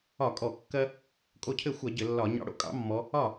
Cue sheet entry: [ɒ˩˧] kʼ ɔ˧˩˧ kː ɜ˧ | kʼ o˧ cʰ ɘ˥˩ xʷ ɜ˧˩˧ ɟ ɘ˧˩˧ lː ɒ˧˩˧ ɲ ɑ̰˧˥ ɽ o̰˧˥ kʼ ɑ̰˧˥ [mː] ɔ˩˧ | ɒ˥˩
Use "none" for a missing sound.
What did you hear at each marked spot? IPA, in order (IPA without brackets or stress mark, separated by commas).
ɒ˧˩˧, mː